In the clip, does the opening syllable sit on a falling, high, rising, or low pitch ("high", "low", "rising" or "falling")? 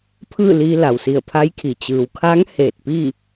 falling